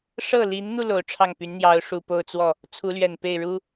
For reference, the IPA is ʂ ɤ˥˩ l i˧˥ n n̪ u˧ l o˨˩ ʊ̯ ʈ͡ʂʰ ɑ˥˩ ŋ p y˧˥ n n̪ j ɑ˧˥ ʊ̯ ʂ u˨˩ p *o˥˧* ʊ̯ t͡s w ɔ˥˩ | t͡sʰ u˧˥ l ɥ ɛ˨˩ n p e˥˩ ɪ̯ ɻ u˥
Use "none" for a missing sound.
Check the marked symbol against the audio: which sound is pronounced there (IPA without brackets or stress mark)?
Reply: o˥˧